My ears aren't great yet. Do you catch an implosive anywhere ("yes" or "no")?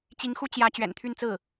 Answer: no